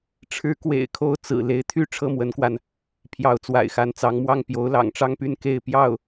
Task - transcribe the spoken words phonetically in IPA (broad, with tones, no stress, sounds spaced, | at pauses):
ʈ͡ʂʰ ɻ̩˧˥ k w ḛ˨˩ ɪ̯ kʰ o˧˥ ʊ̯ t͡s ɹ̩˨˩ l e˧˥ ɪ̯ t̪ʰ y˥˧ ʈ͡ʂʰ ɤ˥˩ m w ə˧˥ n k w a˧ n | pʰ j ɑ˧˥ ʊ̯ t͡s w a̰˨˩ ɪ̯ x a˧˥ n t͡s ɑ˧˥ ŋ m w ɑ˥˩ ŋ p j o˧˥ ʊ̯ l ɑ̰˨˩ ŋ ʈ͡ʂ ɑ˥˧ ŋ p y˥˧ n k e˥˧ ɪ̯ p j ɑ˥˩ ʊ̯